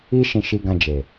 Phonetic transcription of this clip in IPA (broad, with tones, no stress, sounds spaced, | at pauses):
i˧ ʃ ĩ˧ ʃ i˧ ɡ ã˧ d͡ʒ e˨